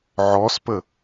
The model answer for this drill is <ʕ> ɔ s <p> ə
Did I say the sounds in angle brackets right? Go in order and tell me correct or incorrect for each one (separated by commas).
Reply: correct, correct